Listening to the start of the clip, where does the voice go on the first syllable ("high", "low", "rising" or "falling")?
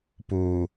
low